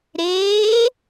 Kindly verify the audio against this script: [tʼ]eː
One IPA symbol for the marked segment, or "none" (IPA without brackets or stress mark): ɾ